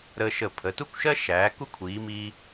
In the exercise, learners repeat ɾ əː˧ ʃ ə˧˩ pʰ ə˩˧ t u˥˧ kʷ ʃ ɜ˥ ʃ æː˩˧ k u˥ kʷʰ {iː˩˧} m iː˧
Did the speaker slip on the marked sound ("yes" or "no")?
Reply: no